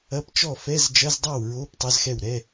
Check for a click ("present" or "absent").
absent